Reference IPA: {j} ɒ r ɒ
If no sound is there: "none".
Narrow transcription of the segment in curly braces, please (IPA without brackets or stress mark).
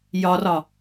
j